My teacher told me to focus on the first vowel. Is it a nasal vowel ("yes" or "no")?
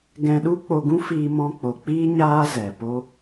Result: yes